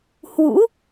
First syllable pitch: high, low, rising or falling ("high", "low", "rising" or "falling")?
rising